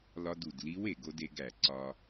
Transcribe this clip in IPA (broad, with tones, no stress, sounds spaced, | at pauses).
l ɒ˧ d u˩ d l i˧˥ w e˩ ɡ o˧ d e˩˧ ɡ æ˩ ǀ ɒ˧